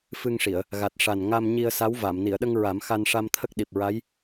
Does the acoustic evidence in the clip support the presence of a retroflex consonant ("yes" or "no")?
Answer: yes